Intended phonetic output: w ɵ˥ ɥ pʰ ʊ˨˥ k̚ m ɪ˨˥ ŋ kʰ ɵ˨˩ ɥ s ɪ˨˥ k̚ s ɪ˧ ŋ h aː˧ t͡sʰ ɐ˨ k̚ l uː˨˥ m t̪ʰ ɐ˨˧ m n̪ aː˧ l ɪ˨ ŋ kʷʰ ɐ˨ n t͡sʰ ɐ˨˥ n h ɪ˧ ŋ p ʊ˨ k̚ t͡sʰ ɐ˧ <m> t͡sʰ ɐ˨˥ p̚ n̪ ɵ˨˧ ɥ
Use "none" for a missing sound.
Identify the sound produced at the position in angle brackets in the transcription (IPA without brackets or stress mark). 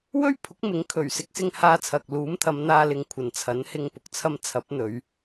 m